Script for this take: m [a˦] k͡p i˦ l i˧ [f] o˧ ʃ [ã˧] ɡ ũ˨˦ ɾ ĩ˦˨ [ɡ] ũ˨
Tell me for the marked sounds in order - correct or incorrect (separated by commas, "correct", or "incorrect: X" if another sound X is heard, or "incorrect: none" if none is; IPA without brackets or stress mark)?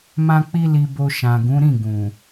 incorrect: ã˦, incorrect: b, incorrect: ã˨, correct